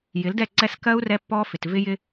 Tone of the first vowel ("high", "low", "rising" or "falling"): rising